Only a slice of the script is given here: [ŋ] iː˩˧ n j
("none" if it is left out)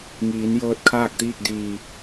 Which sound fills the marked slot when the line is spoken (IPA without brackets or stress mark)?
ŋ